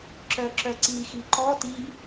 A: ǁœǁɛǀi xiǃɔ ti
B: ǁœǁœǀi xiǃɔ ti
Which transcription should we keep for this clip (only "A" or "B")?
B